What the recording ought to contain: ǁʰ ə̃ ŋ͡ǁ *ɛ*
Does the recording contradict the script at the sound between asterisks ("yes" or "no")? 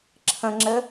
yes